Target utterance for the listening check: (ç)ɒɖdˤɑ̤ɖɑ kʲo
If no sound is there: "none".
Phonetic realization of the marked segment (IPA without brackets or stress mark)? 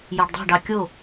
j